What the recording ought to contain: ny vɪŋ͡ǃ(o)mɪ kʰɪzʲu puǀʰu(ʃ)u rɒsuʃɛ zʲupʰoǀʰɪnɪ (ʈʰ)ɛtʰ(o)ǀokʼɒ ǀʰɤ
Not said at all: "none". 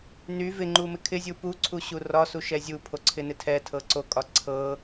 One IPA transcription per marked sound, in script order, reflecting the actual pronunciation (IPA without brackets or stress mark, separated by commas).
u, ɕ, tʰ, ɤ